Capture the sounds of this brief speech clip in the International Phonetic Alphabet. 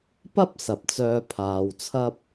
pɐ˥p̚ sɐ˨p̚t͡sœː˧pʰaː˨w t͡sʰɐ˥p̚

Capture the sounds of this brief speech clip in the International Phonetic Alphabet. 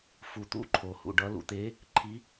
fu˨t̪ṵ˧˥ ǃʰo˨hṵ˨ɖʌ˧˥ lṵ˨t̪e˧˥ | ǃʰi˧˥

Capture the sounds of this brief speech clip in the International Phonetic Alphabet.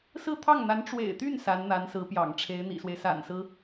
sɹ̩˥˧t̪ʰɑ˥˩ŋn̪a˧˥n ʈ͡ʂwḛ˨˩ɪ̯t̪y˥˩n sa˧˥nn̪a˧˥nsɹ̩˧˥pjɑ̰˨˩ŋ ʈ͡ʂʰe˧˥ɪ̯n̪ḭ˨˩swe˦ɪ̯ sa̰˨˩nsɹ̩˦

